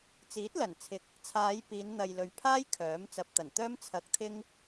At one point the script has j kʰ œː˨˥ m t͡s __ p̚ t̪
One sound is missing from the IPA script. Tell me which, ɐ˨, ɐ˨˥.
ɐ˨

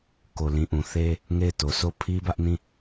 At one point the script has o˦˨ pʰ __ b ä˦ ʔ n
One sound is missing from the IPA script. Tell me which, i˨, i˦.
i˦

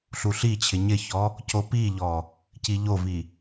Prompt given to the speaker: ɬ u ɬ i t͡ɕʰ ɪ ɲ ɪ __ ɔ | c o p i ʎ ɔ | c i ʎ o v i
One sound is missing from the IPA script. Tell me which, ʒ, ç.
ç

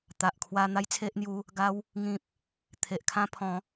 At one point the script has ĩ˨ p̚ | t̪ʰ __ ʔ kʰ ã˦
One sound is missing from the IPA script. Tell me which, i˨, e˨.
e˨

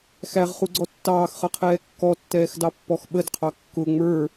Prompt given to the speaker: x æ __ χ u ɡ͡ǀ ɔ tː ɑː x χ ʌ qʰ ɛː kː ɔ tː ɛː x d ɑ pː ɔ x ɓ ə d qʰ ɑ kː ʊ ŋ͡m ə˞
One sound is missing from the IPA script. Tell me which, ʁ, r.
ʁ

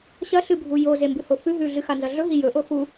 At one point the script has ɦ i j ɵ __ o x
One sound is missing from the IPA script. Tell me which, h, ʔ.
ʔ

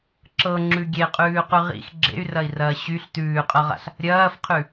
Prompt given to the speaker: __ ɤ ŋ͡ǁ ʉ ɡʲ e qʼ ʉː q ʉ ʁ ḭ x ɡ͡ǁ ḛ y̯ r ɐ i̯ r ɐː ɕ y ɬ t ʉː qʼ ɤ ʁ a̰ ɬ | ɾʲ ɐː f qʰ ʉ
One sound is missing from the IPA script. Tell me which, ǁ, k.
ǁ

